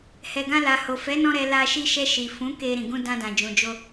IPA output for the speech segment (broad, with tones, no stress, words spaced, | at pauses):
hɛ˨ɡã˧la˨ho˨ fɛ˨˦nɔ̃˧ ɾɛ˧ la˧ ʃi˧ʃɛ˧ʃi˨fũ˨˦ ke˧ ɾĩ˨ɡũ˧ dã˧dã˨d͡ʒũ˨d͡ʒo˧